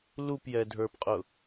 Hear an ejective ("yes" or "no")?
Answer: yes